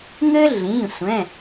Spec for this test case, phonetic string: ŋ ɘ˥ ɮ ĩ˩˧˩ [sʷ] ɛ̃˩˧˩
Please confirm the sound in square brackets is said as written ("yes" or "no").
yes